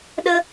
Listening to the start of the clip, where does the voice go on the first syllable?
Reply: high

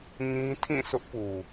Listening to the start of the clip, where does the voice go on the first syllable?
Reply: high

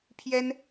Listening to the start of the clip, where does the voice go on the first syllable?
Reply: high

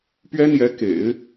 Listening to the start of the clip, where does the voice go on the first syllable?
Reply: high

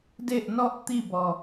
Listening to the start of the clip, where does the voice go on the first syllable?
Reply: falling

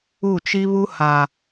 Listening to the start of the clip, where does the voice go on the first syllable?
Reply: falling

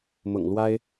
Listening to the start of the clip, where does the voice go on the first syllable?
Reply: low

